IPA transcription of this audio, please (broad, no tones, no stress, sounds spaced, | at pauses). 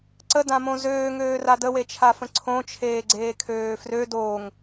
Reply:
ǀ ə d ã m õ z øː ŋ øː r a d ə w e t͡ʃʰ a f ə̃ ǀʰ õ t͡ʃʰ eː ɡ͡ǀ eː kʰ øː f r ø d oː ŋ